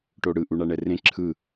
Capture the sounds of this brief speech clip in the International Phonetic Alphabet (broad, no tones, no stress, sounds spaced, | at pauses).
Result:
ʈ o ɽ ɯ ʔ u ɳ a ɳ ɛ r ẽ ǁʰ ɯ